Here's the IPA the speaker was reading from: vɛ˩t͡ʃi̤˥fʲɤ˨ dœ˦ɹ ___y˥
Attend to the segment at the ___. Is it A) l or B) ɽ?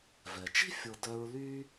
A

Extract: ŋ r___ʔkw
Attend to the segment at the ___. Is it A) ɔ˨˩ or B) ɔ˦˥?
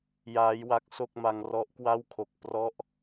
B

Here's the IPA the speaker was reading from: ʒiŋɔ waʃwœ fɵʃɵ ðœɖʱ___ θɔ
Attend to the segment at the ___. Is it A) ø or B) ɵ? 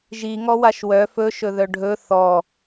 B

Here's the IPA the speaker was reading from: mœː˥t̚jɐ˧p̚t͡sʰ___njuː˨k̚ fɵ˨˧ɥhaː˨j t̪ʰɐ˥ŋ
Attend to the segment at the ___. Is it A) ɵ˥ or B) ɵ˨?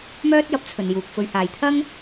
B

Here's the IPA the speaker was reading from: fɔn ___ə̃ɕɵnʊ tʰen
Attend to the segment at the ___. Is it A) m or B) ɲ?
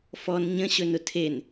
B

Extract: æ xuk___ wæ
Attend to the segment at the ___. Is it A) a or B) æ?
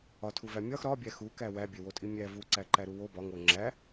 B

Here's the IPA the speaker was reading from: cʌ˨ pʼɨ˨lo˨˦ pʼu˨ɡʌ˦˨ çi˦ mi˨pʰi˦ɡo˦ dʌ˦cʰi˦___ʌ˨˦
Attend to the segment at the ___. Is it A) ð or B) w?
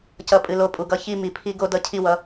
B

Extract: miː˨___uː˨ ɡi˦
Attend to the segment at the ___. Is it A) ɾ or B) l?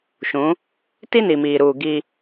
A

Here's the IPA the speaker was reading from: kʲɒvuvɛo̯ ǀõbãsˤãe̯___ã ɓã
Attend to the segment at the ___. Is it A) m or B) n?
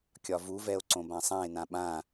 B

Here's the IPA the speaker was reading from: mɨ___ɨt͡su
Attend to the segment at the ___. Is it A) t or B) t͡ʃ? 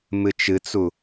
B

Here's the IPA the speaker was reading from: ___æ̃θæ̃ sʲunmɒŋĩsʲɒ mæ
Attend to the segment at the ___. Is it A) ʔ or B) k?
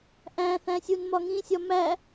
A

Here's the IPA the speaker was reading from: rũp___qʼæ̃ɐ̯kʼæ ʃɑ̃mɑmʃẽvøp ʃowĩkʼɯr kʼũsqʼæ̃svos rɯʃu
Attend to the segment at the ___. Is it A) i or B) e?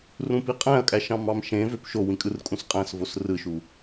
A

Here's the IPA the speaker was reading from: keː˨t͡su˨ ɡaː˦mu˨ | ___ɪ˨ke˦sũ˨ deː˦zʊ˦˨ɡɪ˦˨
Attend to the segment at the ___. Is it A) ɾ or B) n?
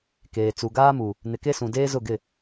B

